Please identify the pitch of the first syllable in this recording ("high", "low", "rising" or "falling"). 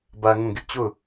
high